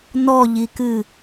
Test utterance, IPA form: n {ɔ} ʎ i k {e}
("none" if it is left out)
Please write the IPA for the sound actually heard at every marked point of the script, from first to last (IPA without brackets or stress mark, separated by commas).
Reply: ɔ, ɨ